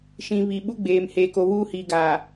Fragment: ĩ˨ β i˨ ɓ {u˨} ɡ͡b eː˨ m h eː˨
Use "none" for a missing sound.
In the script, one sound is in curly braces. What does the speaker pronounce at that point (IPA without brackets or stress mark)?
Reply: u˦